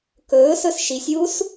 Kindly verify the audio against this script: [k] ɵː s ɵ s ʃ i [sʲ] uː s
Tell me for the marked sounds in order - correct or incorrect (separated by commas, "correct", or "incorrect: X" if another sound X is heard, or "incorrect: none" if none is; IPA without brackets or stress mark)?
correct, correct